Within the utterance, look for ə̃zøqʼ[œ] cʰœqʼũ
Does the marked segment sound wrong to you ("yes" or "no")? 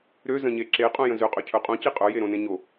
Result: yes